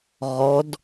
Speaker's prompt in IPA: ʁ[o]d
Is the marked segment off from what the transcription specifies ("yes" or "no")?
yes